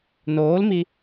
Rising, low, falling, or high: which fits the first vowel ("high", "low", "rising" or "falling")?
rising